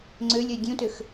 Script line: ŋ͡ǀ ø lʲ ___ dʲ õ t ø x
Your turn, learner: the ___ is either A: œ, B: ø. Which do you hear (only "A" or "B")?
A